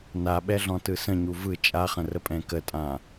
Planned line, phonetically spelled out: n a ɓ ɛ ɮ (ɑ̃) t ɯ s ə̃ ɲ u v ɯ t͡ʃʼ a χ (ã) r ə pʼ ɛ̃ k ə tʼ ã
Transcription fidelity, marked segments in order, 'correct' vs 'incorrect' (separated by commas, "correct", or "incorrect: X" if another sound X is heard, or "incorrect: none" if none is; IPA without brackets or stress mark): incorrect: ɔ̃, incorrect: ə̃